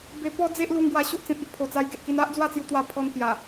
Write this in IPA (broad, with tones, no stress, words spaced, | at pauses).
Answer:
be˧pɔ˦ d͡ze˦ʔlu˧ŋ ɡwa˧ɕo˦ʔt͡sẽ˨t̚i˦ʔ pʰo˨˩t͡sa˧jɡe˨ʔki˧n a˦ʔ d͡zwa˥˧t͡sju˧t̪wa˧ pʰɔ˧n pja˨˩